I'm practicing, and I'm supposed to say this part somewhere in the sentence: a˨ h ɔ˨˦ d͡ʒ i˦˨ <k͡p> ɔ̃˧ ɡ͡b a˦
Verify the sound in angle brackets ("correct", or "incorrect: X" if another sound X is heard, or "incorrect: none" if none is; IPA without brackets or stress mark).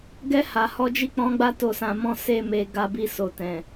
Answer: correct